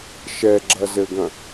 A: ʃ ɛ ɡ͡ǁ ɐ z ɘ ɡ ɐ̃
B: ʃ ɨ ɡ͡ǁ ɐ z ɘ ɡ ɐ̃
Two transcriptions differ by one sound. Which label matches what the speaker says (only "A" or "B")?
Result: A